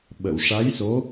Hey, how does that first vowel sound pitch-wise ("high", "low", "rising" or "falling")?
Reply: low